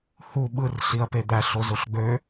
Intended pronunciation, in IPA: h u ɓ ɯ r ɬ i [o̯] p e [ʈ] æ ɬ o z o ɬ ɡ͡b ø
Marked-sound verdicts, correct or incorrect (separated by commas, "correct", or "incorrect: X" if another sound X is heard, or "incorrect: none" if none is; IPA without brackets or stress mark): incorrect: ɐ̯, incorrect: d̪